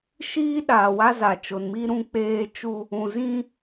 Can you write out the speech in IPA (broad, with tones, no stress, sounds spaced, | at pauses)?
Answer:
ʃ iː˦ ɗ aː˨ w a˦ z a˨ t͡ʃ o˨ n m i˦ ɾ ũ˦ k͡p eː˦ t͡ʃ u˦ | ũ˨ z ĩ˦